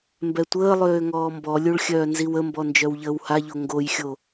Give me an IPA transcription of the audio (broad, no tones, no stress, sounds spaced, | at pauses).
m b ɛ tʷ əː lˠ øː ŋ ɔː m b ɔ lʲ u ɭ xʲ œː n z i w ə m b ɔ n d͡ʒ œ w ʎ əː w h a ʎ o ŋ ɡ o j xʲ o